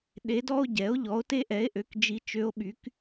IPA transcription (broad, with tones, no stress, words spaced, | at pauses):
ɗe˧˥dɔ˥o̯ɟɛ˩˥o̯ ʎɔ˩˥o̯te˥ʔɛ˩˥e̯ʔø˩˥k d͡ʒi˧˥t͡ʃø˧˥o̯ɓy˩˥k